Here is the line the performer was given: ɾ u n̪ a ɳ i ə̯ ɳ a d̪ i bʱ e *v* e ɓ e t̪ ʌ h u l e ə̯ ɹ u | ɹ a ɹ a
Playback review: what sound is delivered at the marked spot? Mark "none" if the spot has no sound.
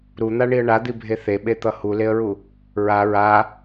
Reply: θ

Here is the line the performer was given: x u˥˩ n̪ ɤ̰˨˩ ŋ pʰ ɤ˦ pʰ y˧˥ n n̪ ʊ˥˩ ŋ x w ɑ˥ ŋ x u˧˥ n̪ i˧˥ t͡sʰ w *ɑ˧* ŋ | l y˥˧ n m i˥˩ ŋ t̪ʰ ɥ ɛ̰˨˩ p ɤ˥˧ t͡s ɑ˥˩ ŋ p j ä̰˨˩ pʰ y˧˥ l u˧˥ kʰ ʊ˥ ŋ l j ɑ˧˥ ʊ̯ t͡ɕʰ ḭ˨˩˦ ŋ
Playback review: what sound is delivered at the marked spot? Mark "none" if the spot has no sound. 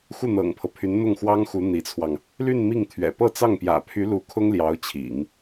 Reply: ɑ˧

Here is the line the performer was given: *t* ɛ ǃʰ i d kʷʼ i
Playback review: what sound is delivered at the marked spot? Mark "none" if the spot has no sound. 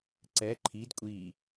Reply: ǀ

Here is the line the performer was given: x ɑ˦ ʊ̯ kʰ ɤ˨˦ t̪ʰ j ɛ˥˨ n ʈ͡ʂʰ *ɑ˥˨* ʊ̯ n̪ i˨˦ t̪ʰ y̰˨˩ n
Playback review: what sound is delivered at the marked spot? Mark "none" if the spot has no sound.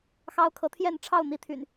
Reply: ɑ˥˨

